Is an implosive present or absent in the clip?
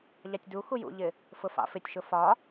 absent